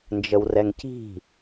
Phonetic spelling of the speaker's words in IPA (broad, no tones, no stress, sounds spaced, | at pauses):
n d͡ʒ ə w r ɛ ŋ c i̤